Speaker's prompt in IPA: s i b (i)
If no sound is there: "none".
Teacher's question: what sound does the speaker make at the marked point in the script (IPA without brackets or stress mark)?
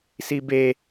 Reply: e